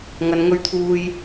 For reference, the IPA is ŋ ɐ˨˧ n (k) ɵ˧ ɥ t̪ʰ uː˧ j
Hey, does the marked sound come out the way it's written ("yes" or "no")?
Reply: no